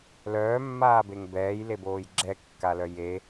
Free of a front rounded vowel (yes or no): no